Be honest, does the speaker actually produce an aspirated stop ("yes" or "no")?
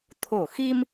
yes